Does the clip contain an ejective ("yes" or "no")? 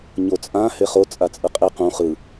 yes